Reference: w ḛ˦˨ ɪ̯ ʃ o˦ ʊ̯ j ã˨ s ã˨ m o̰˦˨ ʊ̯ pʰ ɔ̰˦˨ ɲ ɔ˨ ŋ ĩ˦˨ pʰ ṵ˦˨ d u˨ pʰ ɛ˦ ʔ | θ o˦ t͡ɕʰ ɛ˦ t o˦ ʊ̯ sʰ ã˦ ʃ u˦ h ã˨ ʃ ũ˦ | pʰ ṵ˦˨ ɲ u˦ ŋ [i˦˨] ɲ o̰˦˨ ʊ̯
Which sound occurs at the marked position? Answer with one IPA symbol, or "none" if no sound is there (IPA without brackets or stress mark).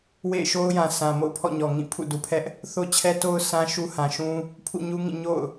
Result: ĩ˦˨